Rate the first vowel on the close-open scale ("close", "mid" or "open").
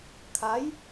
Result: open